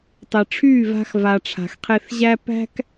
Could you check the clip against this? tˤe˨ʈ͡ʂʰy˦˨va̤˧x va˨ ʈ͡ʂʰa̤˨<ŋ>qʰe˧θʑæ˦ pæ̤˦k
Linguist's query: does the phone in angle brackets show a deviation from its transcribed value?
yes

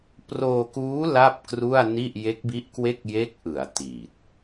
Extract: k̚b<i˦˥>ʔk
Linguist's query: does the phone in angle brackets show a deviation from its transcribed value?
no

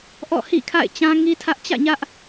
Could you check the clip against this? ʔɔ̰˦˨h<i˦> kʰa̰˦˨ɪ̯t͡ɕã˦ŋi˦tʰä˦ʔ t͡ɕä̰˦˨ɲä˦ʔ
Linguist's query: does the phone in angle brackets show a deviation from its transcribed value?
yes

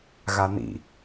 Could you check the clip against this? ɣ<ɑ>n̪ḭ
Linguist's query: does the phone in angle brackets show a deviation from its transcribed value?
yes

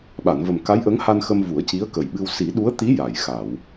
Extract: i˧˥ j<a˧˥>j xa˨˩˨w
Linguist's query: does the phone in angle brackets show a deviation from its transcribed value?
yes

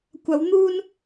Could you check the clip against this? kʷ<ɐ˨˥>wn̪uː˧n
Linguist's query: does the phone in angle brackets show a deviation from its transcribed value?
yes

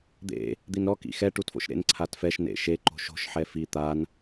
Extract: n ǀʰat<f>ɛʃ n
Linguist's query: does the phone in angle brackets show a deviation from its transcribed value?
no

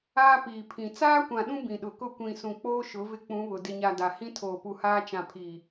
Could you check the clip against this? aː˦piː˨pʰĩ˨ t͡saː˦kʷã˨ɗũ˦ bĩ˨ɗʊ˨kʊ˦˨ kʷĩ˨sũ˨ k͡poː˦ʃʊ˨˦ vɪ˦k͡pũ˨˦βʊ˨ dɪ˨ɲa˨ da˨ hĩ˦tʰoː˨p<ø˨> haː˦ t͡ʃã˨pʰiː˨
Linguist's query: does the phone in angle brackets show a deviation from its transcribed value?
yes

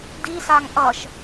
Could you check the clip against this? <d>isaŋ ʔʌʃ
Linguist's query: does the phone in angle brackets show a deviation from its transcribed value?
no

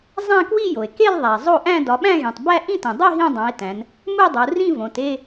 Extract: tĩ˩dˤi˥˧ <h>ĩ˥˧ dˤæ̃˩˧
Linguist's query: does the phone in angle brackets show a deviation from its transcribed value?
yes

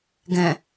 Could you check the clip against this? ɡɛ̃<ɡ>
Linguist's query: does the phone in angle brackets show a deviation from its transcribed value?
yes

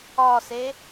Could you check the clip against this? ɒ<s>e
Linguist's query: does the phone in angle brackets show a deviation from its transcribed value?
no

